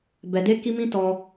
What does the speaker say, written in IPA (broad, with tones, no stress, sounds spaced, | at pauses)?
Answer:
b ɛ˧ d e˦ k i˦ m ĩ˦ t ɔ˦